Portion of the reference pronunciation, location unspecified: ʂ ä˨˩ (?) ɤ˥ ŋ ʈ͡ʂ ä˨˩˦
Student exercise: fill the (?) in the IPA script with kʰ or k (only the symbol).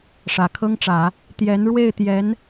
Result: kʰ